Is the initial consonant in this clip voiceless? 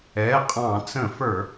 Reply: yes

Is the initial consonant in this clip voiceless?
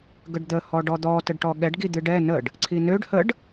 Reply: no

